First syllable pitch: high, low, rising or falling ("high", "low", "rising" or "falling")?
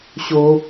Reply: high